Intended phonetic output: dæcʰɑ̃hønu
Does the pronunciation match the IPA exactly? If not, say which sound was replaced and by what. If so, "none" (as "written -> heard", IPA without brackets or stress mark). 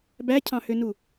d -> b